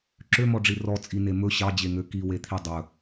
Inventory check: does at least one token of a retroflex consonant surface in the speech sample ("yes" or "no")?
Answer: yes